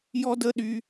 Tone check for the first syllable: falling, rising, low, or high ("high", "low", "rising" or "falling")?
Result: high